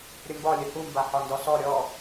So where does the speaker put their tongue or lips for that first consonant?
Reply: tongue tip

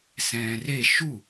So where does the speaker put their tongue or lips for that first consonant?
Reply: tongue tip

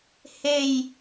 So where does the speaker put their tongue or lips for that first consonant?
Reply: throat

